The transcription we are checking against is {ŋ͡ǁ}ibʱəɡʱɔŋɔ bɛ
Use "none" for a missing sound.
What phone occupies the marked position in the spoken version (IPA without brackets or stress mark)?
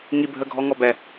ŋ